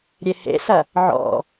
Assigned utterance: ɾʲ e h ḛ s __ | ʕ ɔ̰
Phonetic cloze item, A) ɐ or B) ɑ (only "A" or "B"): A